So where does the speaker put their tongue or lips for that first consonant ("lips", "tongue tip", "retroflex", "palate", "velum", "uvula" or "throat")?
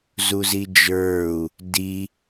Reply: tongue tip